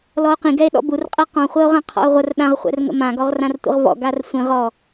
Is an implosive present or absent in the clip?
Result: present